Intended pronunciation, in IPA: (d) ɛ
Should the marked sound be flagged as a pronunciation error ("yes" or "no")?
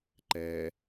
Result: yes